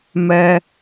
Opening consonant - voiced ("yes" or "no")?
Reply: yes